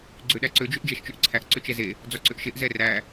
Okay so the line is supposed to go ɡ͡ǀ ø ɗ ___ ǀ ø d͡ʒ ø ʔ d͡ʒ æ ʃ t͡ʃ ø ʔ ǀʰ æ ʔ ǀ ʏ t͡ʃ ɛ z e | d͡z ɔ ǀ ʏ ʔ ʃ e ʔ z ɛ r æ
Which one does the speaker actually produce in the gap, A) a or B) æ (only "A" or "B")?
B